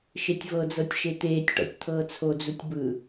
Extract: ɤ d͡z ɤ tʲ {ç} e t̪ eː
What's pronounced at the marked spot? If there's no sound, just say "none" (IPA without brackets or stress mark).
ʃ